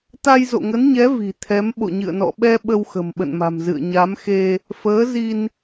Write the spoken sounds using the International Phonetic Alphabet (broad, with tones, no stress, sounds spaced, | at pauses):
t̪ a˧ j z o̰˧˨ ŋ ə˨˦ n ɲ ɛ˨˦ v i̤˨˩ t̪ʰ ɛ˨˦ m ɓ o̰˧˨ ɲ ɨ̰˧˨ ə̯ n ɔ̰˧˨ ɓ ɛ˧ ɓ ə˧ w x ə̤˨˩ m ɓ ə̰˧˨ n m a̤˨˩ m z ɨ̰˧˨ ə̯ ɲ a˨˦ m x e˧ | f əː˨˦ z i˧ n